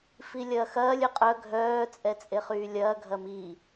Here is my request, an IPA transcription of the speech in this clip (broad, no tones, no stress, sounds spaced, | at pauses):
f i lʲ ɐː x ɐː lʲ ø qʼ œ ɡʱ œː t͡sʼ ɛ t͡sʼ e χ yː lʲ ɐː ɡʱ ɐ m i